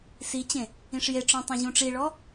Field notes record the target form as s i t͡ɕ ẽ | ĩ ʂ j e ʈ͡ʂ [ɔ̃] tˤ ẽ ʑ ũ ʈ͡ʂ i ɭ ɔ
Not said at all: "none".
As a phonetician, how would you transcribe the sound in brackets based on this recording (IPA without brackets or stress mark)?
ɔ̃